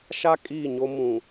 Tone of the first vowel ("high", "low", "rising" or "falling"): high